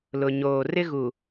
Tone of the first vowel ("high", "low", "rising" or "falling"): low